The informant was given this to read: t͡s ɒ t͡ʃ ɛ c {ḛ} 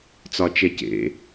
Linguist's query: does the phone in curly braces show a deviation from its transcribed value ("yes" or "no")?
no